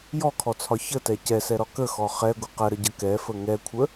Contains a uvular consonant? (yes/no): yes